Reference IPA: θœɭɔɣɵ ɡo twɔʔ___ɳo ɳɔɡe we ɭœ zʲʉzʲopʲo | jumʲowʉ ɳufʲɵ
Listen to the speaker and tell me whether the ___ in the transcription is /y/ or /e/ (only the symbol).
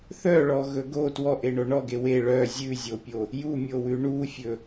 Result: e